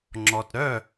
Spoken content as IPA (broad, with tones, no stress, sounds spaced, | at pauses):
ŋ͡ǁ ɔ˩ t ɾ œ˥˩